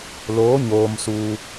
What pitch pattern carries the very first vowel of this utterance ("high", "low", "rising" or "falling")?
rising